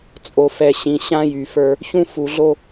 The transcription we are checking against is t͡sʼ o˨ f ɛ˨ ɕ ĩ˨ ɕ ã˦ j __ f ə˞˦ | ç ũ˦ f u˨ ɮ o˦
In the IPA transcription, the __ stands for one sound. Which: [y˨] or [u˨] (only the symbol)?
y˨